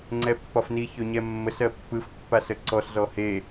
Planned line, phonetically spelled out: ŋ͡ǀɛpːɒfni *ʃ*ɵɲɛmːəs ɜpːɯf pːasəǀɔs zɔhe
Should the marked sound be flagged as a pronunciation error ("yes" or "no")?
yes